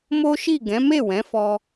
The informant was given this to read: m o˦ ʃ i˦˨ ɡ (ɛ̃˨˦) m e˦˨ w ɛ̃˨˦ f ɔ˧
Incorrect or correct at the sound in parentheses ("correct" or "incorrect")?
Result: correct